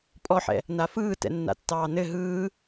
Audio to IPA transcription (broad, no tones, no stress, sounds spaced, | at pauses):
pʼ ɔ ħ ɛ̰ | n a f ɯː t ɛ̰ nː a̰ tː ɑː n ɘ ɦ ɯː